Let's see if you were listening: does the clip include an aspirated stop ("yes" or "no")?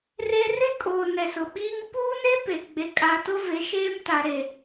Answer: no